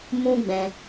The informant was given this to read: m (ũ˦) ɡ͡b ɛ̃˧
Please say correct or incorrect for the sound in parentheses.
correct